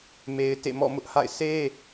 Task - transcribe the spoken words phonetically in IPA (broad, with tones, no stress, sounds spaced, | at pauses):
m e˦ ɪ̯ t ḛ˦˨ m ɔ̰˦˨ m ʊ˦ ʔ h a̰˦˨ ɪ̯ sʰ e˦